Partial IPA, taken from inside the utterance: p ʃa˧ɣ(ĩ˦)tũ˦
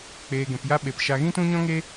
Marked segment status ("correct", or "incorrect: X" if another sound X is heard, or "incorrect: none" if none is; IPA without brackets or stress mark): correct